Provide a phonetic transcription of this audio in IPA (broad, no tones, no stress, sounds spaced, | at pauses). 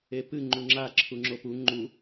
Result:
e p ɨ ŋ͡ǃ u ŋ͡ǁ a ǁʰ u ŋ͡ǁ o p u ŋ͡ǃ u